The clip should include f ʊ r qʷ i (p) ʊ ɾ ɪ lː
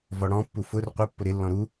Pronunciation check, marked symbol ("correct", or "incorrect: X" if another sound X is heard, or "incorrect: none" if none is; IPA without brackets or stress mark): incorrect: pː